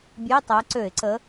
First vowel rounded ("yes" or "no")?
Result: no